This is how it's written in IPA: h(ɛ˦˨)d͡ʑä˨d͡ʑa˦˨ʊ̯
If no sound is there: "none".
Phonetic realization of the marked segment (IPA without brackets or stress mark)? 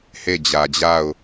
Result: e˦˨